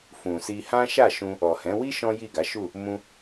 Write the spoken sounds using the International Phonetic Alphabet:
fũ˨si˧ hã˦ʃa˦˨ʃũ˧ | ɔ˨hɛ̃˨˦ wi˦ ʃɔ̃˦ji˦˨ɡa˨˦ʃu˦˨ | mũ˦

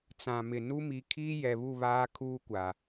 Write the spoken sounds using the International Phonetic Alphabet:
t͡sã˨mɪ˨nu˦ mi˨ kʰiː˦jɛ˨ βu˦˨βaː˦kʰuː˦kʷa˨

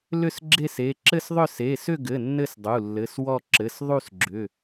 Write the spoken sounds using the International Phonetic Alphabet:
lʏ˥˧sɡ͡ǁe˥˧se˩˧˩ ǁɘ˥˧sðˤʏ˥˧ se˩˧˩sʏ˥˧ɡɘ˩˧˩ nːɘ˥˧sdˤu˩˧˩ lːɘ˩˧˩swɔ˥˧ ǁɘ˩˧˩s ðˤu˥˧sɡ͡ǁʏ˩˧˩

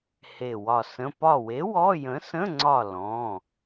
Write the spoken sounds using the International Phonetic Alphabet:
he˧˩wɒ˧˩sə̃˧˥˧ pɒ˧˩we˨˥ wɔ˧˥˧ jə̃˨˥sə̃˧˥˧ŋ͡ǀɒ˧˩ lɔ̃˩˧˩

